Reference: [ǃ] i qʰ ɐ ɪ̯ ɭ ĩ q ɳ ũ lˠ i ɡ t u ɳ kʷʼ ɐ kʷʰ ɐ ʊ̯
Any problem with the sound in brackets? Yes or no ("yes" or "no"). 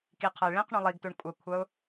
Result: yes